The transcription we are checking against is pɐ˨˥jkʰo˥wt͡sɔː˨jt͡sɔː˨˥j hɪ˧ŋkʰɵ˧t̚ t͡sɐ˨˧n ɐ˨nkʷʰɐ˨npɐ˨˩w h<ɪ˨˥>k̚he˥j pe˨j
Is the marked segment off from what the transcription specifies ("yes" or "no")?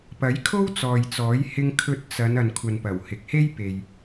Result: yes